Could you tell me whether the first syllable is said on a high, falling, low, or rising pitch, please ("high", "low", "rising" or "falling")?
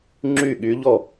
falling